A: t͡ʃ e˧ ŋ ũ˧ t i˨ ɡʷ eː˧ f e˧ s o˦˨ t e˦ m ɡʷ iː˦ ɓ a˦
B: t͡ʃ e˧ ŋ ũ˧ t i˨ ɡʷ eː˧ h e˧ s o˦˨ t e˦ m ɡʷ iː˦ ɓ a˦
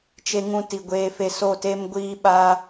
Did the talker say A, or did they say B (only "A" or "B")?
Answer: A